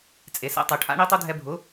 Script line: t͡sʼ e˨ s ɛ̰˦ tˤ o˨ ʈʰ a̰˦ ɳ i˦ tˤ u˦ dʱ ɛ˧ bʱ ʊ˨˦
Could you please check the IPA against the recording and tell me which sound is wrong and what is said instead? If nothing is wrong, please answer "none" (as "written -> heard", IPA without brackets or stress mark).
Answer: none